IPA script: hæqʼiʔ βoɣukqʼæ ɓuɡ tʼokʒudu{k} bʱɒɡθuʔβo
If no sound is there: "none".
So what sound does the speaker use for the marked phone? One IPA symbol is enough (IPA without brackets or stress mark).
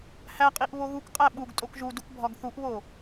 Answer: k